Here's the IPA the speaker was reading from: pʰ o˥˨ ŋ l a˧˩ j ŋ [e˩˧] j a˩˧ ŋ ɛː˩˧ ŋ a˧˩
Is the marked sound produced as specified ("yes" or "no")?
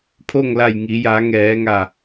no